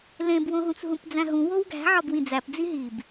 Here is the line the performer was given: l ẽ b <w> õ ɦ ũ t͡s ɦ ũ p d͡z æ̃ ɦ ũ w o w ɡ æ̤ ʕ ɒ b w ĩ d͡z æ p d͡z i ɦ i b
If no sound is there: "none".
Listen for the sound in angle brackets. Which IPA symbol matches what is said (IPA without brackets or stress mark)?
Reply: w